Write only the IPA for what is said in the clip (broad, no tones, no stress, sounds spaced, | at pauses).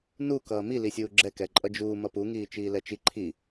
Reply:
n u k ʌː m i l i sʲ uː ɡ͡ǁ ɛ k ɛ ǃʼ ʌ d͡ʒ uː m ʌ p u ŋ iː t͡ʃ iː l ɛ t͡ʃ i ǃʰ i